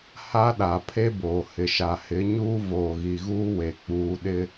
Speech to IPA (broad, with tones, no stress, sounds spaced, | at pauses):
h a˦ ɗ a˨ pʰ e˦ b oː˨ h ɪ˨ ʃ a˨ h ɪ˨˦ ɲ uː˦ v oː˨ ɣ i˨ ɣ uː˦ w e˨ k͡p uː˨ ɗ ɪ˦